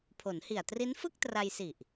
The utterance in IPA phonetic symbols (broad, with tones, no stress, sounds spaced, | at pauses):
pʰ o˩˦ n h i˨˩ a̯ t r i˦˥ n f ɯ˥˩ k̚ t r a˧ j s i˨˩ ʔ